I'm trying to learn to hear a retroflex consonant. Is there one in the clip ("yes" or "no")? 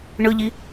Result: yes